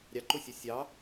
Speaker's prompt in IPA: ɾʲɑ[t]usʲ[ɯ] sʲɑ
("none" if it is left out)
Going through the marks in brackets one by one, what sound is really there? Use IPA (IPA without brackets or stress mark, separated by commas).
ǃ, u